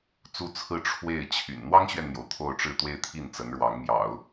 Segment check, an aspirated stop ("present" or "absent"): present